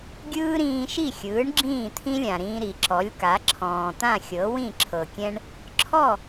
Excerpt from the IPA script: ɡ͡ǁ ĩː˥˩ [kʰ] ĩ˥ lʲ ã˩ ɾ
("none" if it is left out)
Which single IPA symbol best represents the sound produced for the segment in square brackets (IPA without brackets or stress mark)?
t̪ʰ